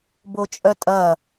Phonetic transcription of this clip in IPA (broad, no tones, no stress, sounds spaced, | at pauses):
b o t͡ʃʼ œ tʼ ɐ